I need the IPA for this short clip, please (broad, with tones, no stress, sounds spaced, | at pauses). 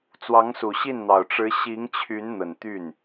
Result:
t͡s w ɑ˧˥ ŋ s u˨˩ ɕ i˥˩ n n̪ ɑ˨˩ ʊ̯ ʈ͡ʂ ɻ̩˧˥ ɕ i˧˥ ŋ t͡ɕʰ y˧˥ n n̪ ə˨˩ n t̪ y˥˩ n